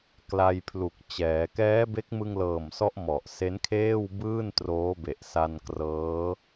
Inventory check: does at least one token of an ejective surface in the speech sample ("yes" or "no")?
no